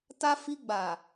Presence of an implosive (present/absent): absent